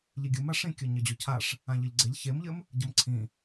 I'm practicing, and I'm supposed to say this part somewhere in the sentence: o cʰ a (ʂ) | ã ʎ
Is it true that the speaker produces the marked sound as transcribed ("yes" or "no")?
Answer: yes